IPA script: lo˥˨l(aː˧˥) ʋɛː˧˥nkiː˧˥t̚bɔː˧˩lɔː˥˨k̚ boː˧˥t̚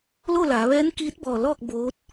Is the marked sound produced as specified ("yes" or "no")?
no